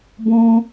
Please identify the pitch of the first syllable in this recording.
high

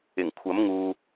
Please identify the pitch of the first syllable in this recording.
low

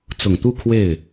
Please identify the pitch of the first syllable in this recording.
low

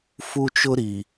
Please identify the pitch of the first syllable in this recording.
high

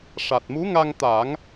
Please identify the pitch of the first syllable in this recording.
low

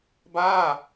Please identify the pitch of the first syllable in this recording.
falling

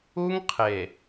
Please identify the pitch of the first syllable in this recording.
high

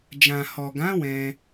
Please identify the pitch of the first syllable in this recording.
low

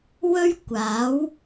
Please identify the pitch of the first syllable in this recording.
high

